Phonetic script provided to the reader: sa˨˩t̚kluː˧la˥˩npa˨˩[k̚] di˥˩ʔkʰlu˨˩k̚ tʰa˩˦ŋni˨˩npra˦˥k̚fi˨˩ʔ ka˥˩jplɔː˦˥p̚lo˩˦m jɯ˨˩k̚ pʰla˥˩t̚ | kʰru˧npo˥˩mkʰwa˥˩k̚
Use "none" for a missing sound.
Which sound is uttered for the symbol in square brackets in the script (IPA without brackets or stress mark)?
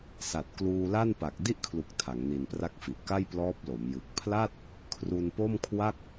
k̚